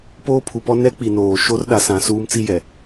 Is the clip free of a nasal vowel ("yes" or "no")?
no